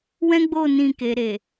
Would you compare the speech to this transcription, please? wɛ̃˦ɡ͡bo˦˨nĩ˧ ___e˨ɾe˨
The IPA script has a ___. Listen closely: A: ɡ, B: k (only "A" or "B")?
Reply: B